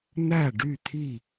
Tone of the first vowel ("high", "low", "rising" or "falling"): falling